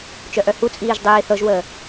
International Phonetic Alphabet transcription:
t͡ʃœʔœhut͡sʼiːʒ dˤiːθɤʒwəː

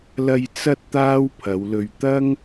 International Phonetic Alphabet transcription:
lɐ˧j t͡sɐ˧t̚ t̪aː˥wpʰɐ˨˧wlɵ˧ɥ t̪ɐ˥ŋ

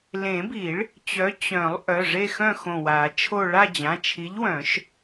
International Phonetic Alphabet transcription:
lẽ˨˩˦bi˨˩˦ɭ | t͡ɕœ˨˥ t͡ɕœ̃˨˩˦lˠ ʔœ˩˧˩ʐe˥˧xœ̃˥˧ xõ˧˩wa˨˩˦t͡ʃʰo˥˧ ɭa˥˧d͡ʑã˩˧˩ t͡ʃʰi˨˥ʎwœ̃˨˩˦ʃ

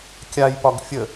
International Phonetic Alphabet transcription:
kʲajpɒɡ fʲə

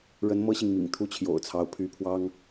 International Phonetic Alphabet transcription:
ɻə˧˥n mɤ˥ɕi˨ŋmḭ˨˩ŋ t̪ʰu˥˩t͡ɕʰjo̰˨˩ʊ̯t͡sʰɑ˧˥ʊ̯ pʰy˧˥pʰwɑ˥ŋ

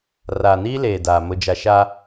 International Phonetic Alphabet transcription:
raː˨niː˦leː˨ daː˨ mʊ˦d͡ʒa˦ ʃa˦

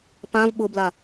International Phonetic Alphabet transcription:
pãv ɓʊbla

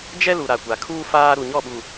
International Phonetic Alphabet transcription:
d͡ʒɛ˦ lu˨ɾa˨kʷa˨kʰuː˦ faː˦ ɾu˨ɲɔ˦˨ɓu˨

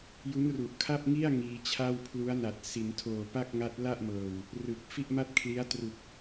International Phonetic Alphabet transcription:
ju˦˥nru˨˩ʔkʰa˥˩p̚ŋi˥˩a̯ ŋiː˧t͡ɕʰa˥˩wpʰlu˦˥a̯na˨˩t̚ si˩˦ntʰoː˨˩pa˥˩k̚ŋa˦˥t̚ la˥˩ʔmɤː˨˩w | rɯ˨˩k̚ fi˥˩ʔma˥˩t̚kʰli˦˥a̯ tru˨˩k̚

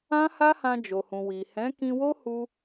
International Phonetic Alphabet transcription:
ã˦ha˦hã˧ d͡ʒo˨hũ˨ wi˨ hɛ̃˨˦kĩ˧wo˦hu˧

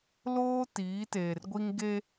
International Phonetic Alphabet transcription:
loː˦ tiː˨˦teː˨rɡʷi˦ŋ ɡe˦

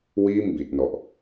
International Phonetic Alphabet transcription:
wiː˥˩mbi˨˩t̚nɔ˨˩ʔ

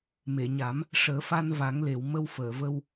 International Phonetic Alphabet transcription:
me˨˩˨ɲa˨˩˦m | ʂəː˨˩˦fa˧n va˨˩˦ŋle˨˩˨wmə˧w fəː˨˩˨və˧w

